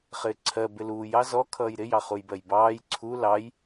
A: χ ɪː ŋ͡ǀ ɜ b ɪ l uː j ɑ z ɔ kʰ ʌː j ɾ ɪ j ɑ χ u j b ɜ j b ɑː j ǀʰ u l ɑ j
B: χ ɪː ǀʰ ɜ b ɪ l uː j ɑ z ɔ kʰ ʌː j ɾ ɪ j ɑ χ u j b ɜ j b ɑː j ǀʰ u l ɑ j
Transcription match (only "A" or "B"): B